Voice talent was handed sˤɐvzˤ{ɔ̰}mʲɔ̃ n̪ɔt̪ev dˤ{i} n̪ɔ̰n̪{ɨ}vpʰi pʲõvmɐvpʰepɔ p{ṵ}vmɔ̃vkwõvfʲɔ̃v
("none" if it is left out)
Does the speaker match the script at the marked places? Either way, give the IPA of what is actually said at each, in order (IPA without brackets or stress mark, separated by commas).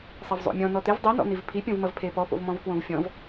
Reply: o̰, i, i, o̰